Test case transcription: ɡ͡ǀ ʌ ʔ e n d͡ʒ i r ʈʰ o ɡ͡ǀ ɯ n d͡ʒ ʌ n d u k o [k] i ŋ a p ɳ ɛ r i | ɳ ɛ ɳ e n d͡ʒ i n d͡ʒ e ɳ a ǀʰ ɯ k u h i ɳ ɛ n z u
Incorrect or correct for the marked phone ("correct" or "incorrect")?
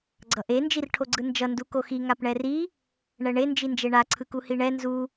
incorrect